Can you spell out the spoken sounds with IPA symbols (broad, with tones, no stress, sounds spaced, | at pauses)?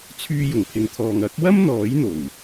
t͡sʰ yː˧ j ʊ˨˩ ŋ pʰ ɪ˨ ŋ t̪ʰ ɔː˨ ŋ ɐ˨˥ k̚ w ɐ˥ m n̪ ɔː˨˥ j n̪ o˨˩ w